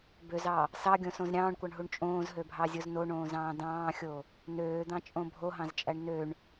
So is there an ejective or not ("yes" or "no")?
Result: yes